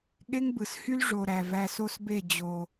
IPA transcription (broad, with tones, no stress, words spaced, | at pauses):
ɠe˦ŋbɯ˨shy˦l ʐo˨ ɾæ˨væ˧so˦sbe˦˨ d͡ʑo˨